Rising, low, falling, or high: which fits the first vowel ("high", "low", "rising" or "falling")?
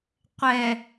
low